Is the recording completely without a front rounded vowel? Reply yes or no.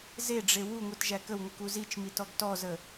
yes